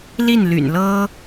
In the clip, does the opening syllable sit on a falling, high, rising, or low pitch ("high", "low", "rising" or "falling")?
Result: falling